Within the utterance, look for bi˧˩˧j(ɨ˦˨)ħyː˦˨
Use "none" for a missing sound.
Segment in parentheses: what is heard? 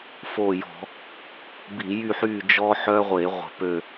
y˦˨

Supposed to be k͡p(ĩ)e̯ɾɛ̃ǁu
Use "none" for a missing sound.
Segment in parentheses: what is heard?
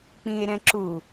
ĩ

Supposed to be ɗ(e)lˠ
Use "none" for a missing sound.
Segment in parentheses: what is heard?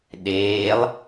eː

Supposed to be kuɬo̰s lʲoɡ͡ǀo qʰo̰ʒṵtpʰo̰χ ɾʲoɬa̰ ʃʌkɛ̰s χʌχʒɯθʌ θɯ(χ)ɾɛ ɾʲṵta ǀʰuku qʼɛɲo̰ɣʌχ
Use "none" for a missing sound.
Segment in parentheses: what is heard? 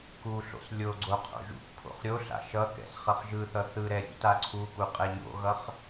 none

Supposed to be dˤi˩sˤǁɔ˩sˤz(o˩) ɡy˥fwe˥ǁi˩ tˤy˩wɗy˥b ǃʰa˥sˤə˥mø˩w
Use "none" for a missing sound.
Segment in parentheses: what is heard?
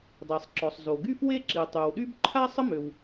o˩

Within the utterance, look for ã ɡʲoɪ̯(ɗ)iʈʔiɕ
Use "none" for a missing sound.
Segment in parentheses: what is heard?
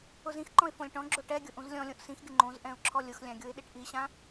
ɗ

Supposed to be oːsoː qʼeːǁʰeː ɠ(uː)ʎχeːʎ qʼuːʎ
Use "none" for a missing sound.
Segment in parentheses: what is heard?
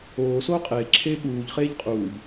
uː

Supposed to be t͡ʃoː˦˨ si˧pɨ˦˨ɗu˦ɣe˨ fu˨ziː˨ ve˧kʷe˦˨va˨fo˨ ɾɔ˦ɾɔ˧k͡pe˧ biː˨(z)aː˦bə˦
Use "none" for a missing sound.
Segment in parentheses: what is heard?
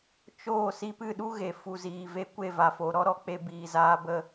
z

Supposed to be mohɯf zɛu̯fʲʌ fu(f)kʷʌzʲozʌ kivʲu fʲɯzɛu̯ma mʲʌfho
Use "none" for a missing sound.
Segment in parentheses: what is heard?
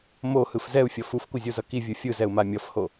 f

